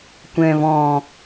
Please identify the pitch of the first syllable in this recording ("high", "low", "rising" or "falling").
low